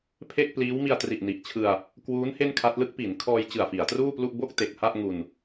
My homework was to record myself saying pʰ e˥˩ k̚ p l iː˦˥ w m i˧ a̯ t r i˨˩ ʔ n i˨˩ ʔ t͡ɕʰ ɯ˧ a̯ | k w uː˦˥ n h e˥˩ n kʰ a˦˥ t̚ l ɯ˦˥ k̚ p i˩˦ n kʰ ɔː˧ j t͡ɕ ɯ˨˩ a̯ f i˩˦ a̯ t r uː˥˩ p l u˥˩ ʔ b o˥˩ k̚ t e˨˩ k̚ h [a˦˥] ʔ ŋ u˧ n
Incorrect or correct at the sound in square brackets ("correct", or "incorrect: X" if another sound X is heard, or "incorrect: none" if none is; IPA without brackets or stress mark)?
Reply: incorrect: a˥˩